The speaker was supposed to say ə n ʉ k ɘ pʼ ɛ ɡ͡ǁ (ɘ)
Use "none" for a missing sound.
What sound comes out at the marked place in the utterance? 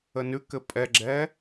ɛ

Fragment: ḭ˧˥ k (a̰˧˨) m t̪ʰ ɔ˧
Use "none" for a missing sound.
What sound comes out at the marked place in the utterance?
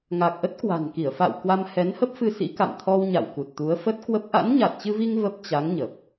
a̰˧˨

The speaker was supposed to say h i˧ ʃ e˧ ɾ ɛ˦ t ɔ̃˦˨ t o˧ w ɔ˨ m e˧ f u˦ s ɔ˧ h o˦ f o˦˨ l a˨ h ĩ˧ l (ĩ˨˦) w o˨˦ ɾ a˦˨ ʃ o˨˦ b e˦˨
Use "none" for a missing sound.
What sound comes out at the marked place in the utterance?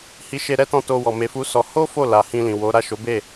ĩ˨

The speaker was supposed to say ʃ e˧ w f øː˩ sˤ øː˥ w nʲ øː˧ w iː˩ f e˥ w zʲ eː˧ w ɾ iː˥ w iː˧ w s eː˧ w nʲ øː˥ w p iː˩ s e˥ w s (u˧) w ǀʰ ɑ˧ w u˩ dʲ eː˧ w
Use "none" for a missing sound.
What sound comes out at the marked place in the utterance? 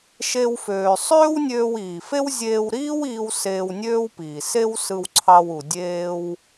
ɯ˧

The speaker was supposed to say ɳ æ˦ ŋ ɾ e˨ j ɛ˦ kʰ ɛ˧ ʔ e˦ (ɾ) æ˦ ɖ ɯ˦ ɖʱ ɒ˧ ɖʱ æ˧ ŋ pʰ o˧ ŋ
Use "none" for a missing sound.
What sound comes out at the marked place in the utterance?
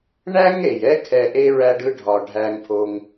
ɹ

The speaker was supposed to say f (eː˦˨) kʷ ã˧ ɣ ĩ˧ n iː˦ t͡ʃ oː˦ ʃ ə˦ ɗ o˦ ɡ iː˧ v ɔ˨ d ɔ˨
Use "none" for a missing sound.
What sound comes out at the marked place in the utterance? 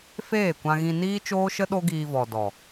eː˦˨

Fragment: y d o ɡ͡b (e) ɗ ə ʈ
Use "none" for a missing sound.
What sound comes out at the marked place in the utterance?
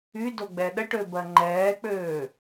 ɛ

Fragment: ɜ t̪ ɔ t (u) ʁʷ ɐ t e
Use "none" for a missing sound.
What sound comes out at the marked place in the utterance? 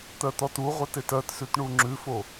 u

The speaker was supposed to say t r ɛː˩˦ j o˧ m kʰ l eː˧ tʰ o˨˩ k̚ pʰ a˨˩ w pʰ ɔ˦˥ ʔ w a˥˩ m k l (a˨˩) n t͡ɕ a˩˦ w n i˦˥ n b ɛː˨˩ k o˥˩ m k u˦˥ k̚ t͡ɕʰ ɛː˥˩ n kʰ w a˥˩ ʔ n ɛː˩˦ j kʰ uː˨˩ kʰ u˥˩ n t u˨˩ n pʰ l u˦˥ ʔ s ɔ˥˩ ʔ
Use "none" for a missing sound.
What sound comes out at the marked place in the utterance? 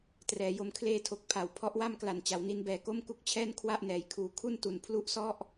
a˨˩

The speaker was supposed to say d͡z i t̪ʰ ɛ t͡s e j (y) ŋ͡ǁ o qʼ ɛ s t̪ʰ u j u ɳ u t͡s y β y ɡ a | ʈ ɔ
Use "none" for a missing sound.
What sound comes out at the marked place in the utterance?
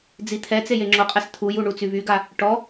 e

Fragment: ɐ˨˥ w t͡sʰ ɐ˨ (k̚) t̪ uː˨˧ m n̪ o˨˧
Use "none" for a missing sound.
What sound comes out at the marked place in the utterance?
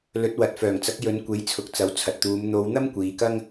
t̚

